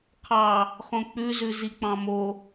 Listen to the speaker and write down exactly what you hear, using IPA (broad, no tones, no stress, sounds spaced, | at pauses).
qʰ ɑ | χ õ k͡p ʉ z ʉ z i k͡p ɑ̃ m o